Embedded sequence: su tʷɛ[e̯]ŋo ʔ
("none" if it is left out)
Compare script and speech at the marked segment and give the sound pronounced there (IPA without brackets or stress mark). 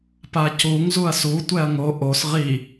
ɐ̯